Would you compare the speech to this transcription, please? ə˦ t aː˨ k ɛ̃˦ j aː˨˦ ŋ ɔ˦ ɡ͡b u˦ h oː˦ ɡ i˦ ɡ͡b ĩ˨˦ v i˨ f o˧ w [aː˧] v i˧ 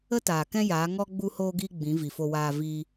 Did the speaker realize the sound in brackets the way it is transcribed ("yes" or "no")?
yes